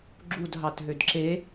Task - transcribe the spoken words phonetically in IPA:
ɡ͡ǁudɦɑt ɦødǁe

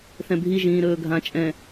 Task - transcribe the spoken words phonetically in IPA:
θɛ̃bʱi ʒĩːɾɵːɡʱã t͡ʃʼɛ̃

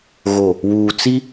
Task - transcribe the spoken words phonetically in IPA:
ɣo˨ | wuː˨ t͡si˦

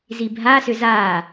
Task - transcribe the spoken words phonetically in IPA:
zibʱasʏ za

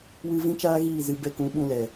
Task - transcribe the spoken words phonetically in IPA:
wɨ˧ vĩ˦t͡ʃaː˦ɣiː˦˨ zɨ˧ bɛ˧kũ˨˦ ɓũ˧lɛ˨

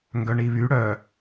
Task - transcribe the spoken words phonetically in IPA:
ŋɡœɳiβy ɽœ

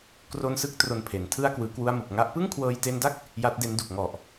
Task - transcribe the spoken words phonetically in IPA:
kro˧nsɯ˦˥k̚ tro˧npʰe˩˦ntʰɯ˥˩a̯ kwɯː˧ kwu˧a̯mɯ˨˩k̚ ŋa˦˥ʔ pɯ˥˩ŋkʰwɤː˧jte˧nda˥˩k̚ | ja˦˥t̚de˦˥ndu˨˩k̚ ŋɔ˨˩ʔ

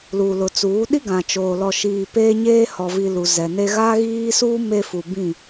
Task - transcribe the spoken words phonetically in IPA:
lu˨lʊ˨t͡suː˨˦ ɗi˦ɡã˨t͡ʃoː˨ lɔ˨ʃiː˨ peː˦ɲeː˦ hɔ˨vi˨ lu˨zɛ˨ne˦ ɣaː˦ɣiː˦suː˦ me˦fu˨ bĩ˦˨

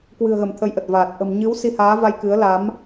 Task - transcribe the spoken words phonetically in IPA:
kwɨ̤˨˩ə̯ɣə˧˩m t̪ʰə˨˦jʔə˨˩t̚vaː˨˩t̚ ʔə̤˨˩m ɲɨ˨˦w si˧haː˨˦va˧j kɨ˨˦ə̯ la˨˦m

